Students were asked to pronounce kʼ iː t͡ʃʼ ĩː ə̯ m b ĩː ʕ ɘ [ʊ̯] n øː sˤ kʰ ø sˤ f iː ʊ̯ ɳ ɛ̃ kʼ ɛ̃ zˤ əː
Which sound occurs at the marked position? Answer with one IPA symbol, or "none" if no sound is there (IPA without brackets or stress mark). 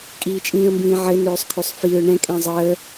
none